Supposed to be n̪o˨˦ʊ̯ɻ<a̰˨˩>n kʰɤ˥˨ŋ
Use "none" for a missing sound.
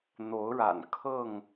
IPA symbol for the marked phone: a̰˨˩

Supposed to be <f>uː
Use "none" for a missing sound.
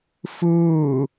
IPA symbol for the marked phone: f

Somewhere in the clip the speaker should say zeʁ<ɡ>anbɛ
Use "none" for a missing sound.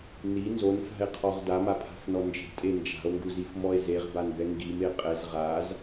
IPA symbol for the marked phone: b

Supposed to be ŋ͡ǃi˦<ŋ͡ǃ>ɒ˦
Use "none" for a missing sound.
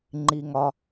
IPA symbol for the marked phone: ŋ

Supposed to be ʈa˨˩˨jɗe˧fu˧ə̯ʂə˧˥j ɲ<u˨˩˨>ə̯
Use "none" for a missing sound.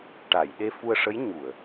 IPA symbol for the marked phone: u˨˩˨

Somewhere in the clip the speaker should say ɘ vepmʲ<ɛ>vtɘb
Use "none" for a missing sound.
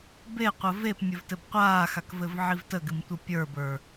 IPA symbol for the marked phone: ɘ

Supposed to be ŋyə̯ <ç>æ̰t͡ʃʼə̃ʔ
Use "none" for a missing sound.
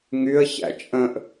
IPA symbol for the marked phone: ç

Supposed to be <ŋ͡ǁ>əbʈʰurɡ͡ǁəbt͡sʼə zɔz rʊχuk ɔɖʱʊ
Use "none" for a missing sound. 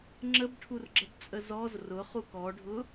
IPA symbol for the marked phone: ŋ͡ǁ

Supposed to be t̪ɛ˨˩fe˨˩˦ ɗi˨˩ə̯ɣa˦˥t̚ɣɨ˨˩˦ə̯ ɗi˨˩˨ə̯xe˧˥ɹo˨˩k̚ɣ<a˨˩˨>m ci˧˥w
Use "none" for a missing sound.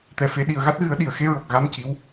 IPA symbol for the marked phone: a˧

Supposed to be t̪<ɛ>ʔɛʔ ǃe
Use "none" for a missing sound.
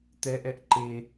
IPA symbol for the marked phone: ɛ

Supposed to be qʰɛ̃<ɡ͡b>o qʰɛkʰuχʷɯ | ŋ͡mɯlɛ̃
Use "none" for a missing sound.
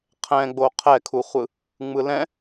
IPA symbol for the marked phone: ɡ͡b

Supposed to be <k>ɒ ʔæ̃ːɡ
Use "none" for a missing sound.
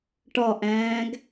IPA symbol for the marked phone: ʈ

